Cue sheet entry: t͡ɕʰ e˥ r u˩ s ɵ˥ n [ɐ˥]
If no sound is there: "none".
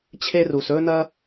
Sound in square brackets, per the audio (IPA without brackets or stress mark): ɐ˥